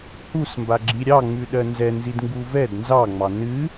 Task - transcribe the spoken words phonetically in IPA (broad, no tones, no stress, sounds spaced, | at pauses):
h u s m b a ɡ͡ǁ i ɾʲ ɑ ŋ͡m ʉ ɗ ɜ n z ɛ n z i d ŋ ɡ u v ɛ d n z ɑ ŋ͡m ɑ n ɨ